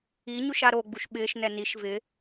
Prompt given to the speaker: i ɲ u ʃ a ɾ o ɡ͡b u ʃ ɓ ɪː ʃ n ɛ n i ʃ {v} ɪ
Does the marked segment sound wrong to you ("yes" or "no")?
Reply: no